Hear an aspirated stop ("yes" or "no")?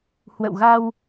no